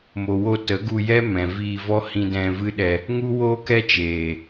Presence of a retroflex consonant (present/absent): absent